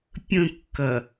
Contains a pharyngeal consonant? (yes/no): no